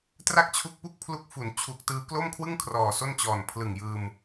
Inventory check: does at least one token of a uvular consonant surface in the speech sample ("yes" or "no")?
no